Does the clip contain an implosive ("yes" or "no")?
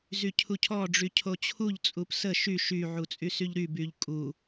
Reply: no